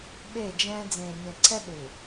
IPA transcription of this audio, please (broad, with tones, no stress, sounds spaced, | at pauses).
ɓ e˦˨ d͡ʒ ɛ̃ː˦ d͡z ẽː˨ nʲ ɛ̃˨ ǀʰ ɛ˦ ɗ u˨